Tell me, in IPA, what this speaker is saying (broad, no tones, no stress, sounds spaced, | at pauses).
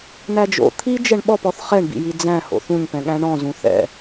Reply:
n̪ æ d͡ʒ o̰ t̪ʰ i d͡ʒ ɛ ɳ ɓ ɔ p ɔ θ χ ɛ ɳ b ḭ j i d͡z æ̃ h o̰ θ ũ ɲ p ɛ̃ ɠ æ̃ ɳ ɔ̃ z ũ θ ɛ̰